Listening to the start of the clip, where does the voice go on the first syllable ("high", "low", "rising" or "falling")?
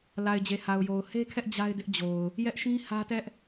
low